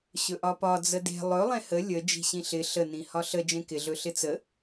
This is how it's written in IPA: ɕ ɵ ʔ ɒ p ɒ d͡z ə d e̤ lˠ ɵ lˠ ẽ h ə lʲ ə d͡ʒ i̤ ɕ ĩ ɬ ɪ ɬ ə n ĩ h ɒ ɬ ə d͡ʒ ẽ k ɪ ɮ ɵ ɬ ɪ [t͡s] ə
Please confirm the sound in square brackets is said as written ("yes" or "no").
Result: yes